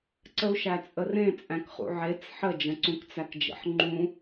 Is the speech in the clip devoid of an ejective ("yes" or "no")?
no